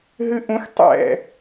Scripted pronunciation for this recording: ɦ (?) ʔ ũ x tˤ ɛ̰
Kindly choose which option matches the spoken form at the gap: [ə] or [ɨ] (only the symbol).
ɨ